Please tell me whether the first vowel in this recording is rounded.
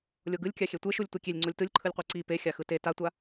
yes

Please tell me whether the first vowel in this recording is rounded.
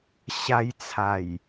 no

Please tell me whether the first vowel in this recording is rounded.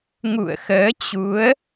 yes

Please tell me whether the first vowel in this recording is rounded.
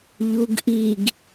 yes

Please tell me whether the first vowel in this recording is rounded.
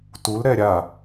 yes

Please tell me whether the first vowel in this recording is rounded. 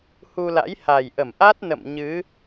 yes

